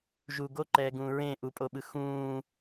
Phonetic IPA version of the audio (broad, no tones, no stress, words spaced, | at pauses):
ʒu ɡoǃɛː ɡũːɹẽ ʔupʼoɓɯ xũː